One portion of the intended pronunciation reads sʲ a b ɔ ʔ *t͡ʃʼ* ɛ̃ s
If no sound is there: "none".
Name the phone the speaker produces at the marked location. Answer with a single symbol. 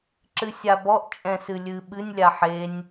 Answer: t͡ʃʼ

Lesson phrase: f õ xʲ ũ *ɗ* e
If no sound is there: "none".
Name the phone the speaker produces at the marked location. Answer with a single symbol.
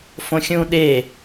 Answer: ɗ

